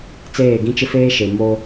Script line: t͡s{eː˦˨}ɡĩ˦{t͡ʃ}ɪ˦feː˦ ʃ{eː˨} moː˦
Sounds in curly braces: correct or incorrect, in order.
correct, correct, incorrect: e˨

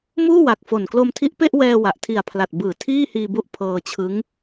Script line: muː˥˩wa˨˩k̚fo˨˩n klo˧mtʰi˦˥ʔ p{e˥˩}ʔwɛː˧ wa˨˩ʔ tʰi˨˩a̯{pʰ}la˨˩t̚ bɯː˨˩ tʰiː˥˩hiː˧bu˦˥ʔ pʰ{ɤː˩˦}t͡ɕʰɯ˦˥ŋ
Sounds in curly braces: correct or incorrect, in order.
correct, correct, incorrect: ɤː˧

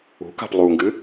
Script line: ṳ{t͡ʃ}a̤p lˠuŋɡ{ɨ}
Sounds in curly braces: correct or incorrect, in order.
incorrect: k, correct

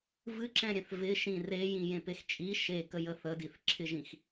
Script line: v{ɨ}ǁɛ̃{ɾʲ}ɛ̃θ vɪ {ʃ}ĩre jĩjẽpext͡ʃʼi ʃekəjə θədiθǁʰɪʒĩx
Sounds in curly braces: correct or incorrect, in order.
correct, correct, correct

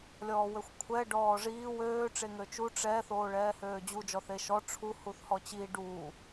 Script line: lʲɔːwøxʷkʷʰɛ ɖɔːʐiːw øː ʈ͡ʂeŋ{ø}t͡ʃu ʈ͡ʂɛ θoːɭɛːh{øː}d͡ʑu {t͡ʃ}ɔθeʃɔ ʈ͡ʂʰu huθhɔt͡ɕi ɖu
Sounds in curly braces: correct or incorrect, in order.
correct, correct, incorrect: d͡ʒ

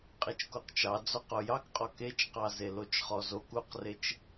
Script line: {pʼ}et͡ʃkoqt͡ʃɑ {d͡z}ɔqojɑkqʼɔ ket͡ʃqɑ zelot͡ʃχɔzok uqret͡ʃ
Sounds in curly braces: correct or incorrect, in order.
incorrect: qʼ, correct

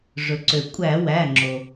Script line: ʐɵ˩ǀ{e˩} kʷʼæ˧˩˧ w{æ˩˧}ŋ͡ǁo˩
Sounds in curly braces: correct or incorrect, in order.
incorrect: ø˩, incorrect: æ˩˧˩

